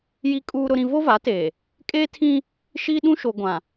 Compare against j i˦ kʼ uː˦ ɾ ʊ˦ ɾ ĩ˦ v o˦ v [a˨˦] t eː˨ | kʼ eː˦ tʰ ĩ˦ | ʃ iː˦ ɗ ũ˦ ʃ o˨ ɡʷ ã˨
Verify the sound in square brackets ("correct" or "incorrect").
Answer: correct